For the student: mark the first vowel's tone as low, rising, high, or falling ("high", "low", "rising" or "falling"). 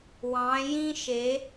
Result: rising